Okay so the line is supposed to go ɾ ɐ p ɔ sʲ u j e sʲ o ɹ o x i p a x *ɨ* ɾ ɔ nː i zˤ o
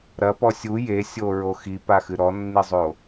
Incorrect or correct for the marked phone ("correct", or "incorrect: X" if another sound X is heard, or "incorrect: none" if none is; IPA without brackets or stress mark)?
correct